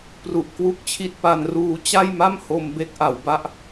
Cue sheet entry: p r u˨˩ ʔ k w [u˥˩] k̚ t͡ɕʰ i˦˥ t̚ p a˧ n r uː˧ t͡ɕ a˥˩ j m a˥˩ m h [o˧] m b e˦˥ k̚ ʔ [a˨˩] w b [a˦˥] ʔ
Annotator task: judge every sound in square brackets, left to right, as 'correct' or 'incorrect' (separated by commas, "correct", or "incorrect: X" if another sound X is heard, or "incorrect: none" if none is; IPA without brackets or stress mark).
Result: incorrect: u˦˥, correct, incorrect: a˩˦, correct